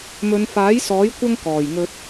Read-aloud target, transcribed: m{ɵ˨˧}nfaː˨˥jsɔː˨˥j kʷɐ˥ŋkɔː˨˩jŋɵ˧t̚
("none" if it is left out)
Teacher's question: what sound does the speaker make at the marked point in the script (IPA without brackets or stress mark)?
ɵ˨˧